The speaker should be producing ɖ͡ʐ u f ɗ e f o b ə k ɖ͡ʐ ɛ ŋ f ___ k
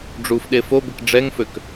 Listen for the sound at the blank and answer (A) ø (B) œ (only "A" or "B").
A